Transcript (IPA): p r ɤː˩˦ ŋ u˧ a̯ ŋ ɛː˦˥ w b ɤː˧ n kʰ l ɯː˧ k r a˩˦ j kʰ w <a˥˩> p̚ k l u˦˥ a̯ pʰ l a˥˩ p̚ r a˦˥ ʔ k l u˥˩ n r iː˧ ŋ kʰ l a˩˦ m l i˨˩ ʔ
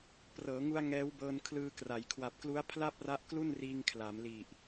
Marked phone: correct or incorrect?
incorrect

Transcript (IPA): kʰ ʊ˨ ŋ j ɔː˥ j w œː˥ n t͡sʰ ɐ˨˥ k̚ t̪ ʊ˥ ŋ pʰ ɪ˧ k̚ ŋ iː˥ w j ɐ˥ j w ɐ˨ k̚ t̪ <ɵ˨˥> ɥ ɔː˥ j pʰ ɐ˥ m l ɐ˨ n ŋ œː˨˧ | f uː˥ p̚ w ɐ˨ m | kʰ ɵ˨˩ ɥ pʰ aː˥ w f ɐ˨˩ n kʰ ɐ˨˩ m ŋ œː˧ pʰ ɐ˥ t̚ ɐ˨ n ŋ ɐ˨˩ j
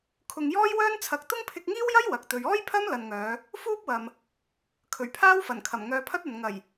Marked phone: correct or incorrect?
incorrect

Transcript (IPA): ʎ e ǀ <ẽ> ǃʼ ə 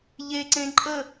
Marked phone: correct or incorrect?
correct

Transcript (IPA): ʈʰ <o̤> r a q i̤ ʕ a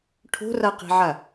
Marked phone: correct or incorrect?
correct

